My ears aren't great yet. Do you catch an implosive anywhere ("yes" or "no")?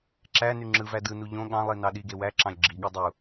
yes